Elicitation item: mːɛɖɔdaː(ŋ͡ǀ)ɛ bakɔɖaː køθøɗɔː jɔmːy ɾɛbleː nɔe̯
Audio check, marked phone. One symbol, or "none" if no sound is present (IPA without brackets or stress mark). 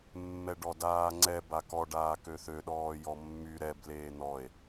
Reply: ŋ͡ǀ